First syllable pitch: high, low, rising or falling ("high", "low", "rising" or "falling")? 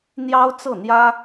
high